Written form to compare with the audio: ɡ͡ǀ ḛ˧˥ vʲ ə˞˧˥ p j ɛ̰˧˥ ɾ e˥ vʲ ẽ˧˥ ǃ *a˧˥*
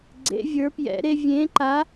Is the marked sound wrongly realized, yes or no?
no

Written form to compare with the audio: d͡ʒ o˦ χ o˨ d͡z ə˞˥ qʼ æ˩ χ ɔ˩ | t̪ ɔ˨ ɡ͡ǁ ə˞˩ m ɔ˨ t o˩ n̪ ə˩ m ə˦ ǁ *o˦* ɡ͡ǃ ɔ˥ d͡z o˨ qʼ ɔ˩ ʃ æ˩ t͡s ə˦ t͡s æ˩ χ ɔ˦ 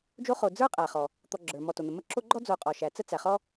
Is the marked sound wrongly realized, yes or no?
no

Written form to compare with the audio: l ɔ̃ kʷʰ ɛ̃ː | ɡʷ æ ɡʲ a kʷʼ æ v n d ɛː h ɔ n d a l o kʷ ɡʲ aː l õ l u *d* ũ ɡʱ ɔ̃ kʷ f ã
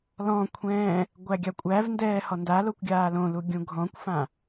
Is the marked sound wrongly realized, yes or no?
yes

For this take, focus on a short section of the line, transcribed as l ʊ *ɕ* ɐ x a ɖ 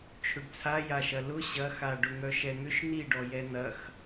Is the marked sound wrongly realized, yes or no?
no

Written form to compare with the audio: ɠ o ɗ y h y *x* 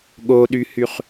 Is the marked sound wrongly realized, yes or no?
yes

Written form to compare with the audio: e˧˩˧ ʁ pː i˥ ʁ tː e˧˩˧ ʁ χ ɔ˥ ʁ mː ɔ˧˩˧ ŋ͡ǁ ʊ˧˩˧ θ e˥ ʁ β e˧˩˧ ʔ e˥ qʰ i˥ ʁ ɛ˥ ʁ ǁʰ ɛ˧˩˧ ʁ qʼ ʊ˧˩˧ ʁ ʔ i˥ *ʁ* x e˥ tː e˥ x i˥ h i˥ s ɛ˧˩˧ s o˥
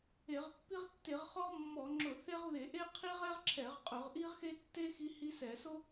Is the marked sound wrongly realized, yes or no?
no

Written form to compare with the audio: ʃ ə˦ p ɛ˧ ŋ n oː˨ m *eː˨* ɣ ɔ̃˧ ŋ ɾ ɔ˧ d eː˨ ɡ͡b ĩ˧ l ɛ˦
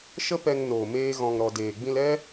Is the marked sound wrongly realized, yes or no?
yes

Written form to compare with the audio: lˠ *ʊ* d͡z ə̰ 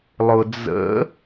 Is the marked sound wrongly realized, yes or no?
no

